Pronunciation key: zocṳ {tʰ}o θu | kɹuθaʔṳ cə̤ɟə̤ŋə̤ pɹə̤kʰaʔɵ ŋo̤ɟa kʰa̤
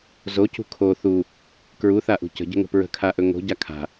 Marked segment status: incorrect: kʰ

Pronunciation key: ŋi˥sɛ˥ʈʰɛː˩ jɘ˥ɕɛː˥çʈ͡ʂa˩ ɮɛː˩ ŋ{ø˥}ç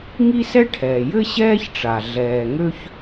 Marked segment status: correct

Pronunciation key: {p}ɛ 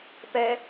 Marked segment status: correct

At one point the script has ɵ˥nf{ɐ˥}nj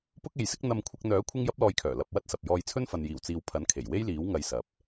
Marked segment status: incorrect: ɐ˨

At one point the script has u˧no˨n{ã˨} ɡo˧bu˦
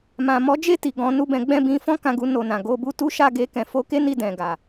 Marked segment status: correct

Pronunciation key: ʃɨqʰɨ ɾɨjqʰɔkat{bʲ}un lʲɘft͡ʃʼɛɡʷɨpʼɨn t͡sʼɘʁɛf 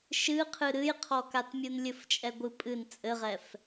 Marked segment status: incorrect: mʲ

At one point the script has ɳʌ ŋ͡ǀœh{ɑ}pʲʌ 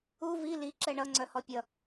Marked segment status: incorrect: ɔ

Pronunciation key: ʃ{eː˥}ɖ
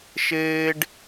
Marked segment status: correct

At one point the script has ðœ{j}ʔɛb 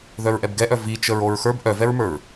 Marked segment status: incorrect: ɹ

